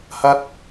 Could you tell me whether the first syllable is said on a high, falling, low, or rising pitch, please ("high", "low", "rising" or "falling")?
high